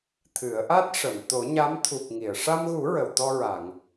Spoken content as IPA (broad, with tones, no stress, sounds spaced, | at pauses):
t̪ʰ ɨ˨˩˦ ə̯ ʔ a˦˥ t̚ ʂ ə˨˩˨ m t̪ o˨˩˦ ɲ a˧˥ m t̪ʰ u˨˩ k̚ ŋ i˨˩˨ ə̯ ʂ a˧ m ɣ u˨˩˦ ɹ ə˨˩˨ w t̪ ɔ˧ ɹ a˨˩˨ ŋ